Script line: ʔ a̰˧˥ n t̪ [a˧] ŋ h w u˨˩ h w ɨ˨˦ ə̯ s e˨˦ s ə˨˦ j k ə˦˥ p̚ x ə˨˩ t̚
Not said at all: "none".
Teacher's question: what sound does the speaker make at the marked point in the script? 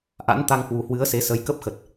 a˧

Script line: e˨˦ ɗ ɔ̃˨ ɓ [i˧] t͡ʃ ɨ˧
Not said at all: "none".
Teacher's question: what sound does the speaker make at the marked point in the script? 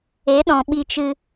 i˧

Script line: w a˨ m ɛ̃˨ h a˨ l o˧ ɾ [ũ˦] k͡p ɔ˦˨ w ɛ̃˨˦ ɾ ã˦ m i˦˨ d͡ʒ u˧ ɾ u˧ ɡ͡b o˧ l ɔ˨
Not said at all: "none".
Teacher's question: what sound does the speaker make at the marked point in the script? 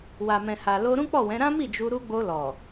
ũ˦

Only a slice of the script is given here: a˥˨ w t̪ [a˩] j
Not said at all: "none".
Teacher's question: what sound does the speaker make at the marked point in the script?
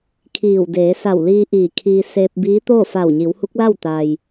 a˩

